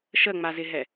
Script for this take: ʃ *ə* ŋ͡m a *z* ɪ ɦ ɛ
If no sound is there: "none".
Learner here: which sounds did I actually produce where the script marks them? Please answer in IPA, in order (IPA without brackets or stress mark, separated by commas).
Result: ə, z